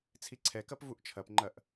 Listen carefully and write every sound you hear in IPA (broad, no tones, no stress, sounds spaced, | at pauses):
t͡sʰ i ǀʰ ɛ k ɐ p v u ʔ t͡ʃʰ ɐ p ŋ͡ǃ ɐ ʔ